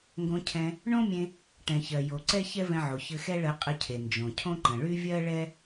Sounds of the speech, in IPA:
ŋ ɡ õ˧ cʰ ɛ̃˧ | ɳ õ˥ mʲ ẽ˧ | ʈ ɛ̃˩ ç ɜ˩ j o˩ ǀ ɛ˥ ç ɛ˥ v ɛ̃˧ ʕ o˩ ç ɘ˧ x ɛ˥ ɭ ɜ˧ qʼ ə˧ cʰ e˩ n d͡ʒ õ˩ cʰ õ˥ ǃ ə̃˩ ɭ y˥ vʲ ɜ˥ ɭ ɛ˥

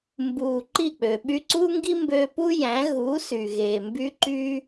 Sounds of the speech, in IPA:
m b uː˨ ǃ i˦˨ k͡p ø˨ ɓ y˧ ǀ uː˦ ŋ ɡ i˦ m b ø˧ p u˦ j æ̃˨˦ ɣ uː˨˦ s y˨ ɣ eː˨ m b y˦ ǃ y˦

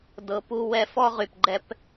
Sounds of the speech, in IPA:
d ɤ˨ p u˧ w ɛ˧ f ɔ˦ ʁ y˨ p ɡ͡ǃ ɛ˦ p

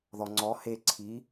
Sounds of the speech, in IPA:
ð ɔ ŋ͡ǀ ɔ h e ǀʰ i

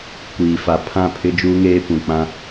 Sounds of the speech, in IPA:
kʷ iː˨ f a˨ pʰ ã˦˨ pʰ ɪ˦ d͡ʒ uː˦ ŋ eː˦ p ũ˨ k͡p ã˦

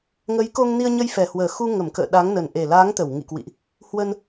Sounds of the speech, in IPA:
ŋ ə˨˦ j k o˧ ŋ n i˧ ə̯ ɲ ə˧ j f ɛ˨˩ h w əː˨˩ x u˧ ŋ ə˧˩ m k ə̰ː˧˨ ɗ a˨˦ ŋ n ə˨˩ n ʔ e˨˩ l aː˨˦ ŋ t̪ ə˧˩ w ŋ ḭ˧˨ k w ḭ˧˨ ʔ | h w ə˧ n

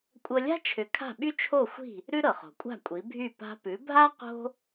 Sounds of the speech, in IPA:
kʷʼ ɤ˧ lʲ a̤˥ t͡ʃʰ ʏ˩˥ kʰ a̤˥˩ ɓ y˥ t͡ʃʰ o˥˩ xʷ i̤˥˩ | ɾ ʉ˥ ɾ ɤ˩ χ o̤˩ kʷʼ a̤˥˩ kʷʼ i˩˥ bʱ y˥˩ p a̤˧ p ʉ˩˥ bʱ a˥ q o̤˥

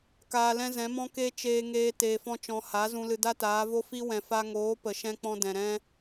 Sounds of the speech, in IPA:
k aː˧ l ɛ̃˦ z ɛ̃˨˦ m ɔ̃˦ k e˦ t͡ʃ eː˧ ŋ eː˧ t eː˨ f ɔ̃˧ t͡ʃ ɔ̃˨ h a˨˦ z ũ˧ l ɨ˧ d a˦ t aː˨˦ v o˧ f i˧ w ɛ̃˨ f a˧ ŋ oː˨˦ p ə˨ ʃ ɛ̃˧ k͡p ɔ̃˧ d ɛ̃˨ ɾ ɛ̃˦

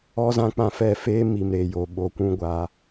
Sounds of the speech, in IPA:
ɔ˦ z ã˦ k͡p ã˧ f ɛ˦˨ f eː˦ m i˨ m ɾ eː˨ j o˨ ɓ o˧ kʷ ũ˦ ɡʷ aː˧

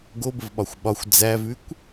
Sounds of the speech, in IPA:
ɡ o b ə v ɓ ɒ xʷ ɓ ɒ xʷ d͡z æ v ʉ kʷ

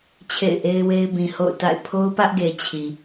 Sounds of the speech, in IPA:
t͡ɕʰ ḛ˦˨ ɪ̯ ʔ e˦ ɪ̯ w e˦ ɪ̯ b ĩ˨ h o̰˦˨ ʊ̯ t a̰˦˨ ɪ̯ pʰ o˦ ʊ̯ p ä˦ ʔ ɡ e˨ t͡ɕʰ i˨

